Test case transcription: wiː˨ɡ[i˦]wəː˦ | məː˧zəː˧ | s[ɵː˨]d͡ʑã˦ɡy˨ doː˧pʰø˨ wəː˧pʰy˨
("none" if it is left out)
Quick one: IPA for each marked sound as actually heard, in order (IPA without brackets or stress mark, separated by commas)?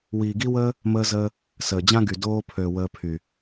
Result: i˦, əː˨